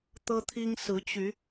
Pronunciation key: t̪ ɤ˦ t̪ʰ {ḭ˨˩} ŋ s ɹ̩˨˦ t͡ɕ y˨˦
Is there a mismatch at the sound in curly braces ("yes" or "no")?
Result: yes